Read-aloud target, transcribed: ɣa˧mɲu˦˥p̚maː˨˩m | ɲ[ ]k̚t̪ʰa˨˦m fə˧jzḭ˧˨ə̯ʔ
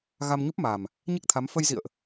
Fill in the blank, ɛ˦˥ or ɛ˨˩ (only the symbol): ɛ˦˥